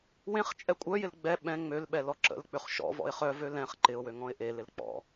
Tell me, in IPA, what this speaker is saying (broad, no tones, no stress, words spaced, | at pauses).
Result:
wẽχ t͡ʃʼɛkʷʼœjɪl ɡ͡bɛ ɓɛ̃ ŋ͡mølɓɛ lɔǁə̰l k͡pøχʃɔ̰vɔ̰ɪ̯ χœ vølɛ̃χ ǃɪʊ̯wø ŋɔ̃ɪ̯ʔelɪl k͡pɔ̰